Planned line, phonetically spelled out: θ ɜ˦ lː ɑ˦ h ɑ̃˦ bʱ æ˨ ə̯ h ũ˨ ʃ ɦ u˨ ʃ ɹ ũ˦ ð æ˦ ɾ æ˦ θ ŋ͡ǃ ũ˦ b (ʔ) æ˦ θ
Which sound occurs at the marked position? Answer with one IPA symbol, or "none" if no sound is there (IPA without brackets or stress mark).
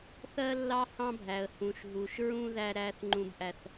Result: ʔ